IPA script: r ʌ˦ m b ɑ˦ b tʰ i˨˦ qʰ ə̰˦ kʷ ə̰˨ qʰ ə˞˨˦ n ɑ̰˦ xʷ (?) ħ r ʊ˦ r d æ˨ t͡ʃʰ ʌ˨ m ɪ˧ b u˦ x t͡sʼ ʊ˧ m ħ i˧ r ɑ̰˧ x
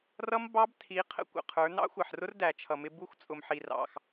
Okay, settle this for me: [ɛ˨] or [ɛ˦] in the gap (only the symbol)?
ɛ˨